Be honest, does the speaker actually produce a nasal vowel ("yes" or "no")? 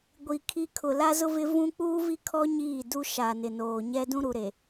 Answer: yes